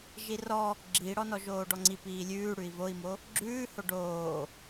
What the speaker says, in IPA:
ʒ i r ɔ | ɡ͡ǁ i ɽ ɔ n ɔ ʒ oː ɖ ɔ ŋ͡ǀ i p iː lʲ ʉː ɽ ʉ i̯ v o i̯ m o | ɡ͡ǁ ʉː h o ɖ oː

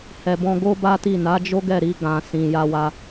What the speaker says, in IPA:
h ɛ˨ b ɔ̃˧ ɡ o˦ b a˦ t i˦˨ n a˨˦ d͡ʒ o˦ ɡ ɛ˦˨ ɾ i˧ ɡ ã˨ s ĩ˨ j a˧ w a˧

